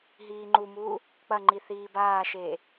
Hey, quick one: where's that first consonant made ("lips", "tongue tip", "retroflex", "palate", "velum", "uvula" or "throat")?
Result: throat